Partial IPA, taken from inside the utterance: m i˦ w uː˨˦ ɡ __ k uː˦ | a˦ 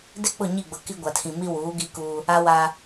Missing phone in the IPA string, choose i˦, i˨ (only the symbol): i˦